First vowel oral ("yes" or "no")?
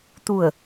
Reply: yes